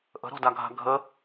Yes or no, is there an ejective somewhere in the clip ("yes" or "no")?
no